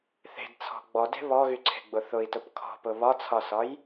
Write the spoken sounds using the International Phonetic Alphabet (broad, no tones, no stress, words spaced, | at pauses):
θe̤dt͡sʰɔ̤ ɡ͡bɔde̤ βɔɣyǀʰe̤ɡ͡bʊ θʊi̯tʊp kʰɔ̤pʊ βɒt͡sʰɒsɒj